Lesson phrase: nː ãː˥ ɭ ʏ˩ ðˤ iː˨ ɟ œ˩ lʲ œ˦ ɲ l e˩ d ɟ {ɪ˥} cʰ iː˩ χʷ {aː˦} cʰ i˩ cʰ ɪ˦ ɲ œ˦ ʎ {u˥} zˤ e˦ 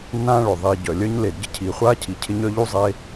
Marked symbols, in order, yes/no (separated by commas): no, yes, yes